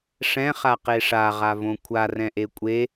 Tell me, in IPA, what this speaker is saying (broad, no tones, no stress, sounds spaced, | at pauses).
ʂ ɛ̃ χ a q e ʂ a ʁ a v õ kʷʰ a r ɛ̃ ʔ e kʷʼ e